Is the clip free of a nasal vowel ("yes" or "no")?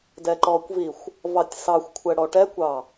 yes